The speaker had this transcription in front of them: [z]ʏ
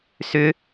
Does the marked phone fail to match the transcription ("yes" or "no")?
yes